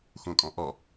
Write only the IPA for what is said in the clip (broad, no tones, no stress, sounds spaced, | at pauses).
x ũ kʼ ɔ̃ ʔ ɔ